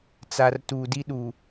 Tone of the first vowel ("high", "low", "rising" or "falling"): low